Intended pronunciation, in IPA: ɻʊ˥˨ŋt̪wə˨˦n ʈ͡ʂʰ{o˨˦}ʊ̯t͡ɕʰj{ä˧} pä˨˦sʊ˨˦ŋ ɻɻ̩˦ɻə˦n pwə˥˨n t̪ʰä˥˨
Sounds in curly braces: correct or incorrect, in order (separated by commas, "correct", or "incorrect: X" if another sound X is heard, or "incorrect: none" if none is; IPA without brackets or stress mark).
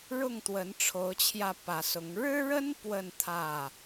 correct, correct